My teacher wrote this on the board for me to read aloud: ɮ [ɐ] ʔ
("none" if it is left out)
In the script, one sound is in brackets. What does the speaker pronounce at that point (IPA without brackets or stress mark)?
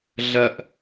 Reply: ɐ